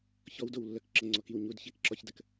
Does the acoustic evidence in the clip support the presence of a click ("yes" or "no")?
yes